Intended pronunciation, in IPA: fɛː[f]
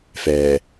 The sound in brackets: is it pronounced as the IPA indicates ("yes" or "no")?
no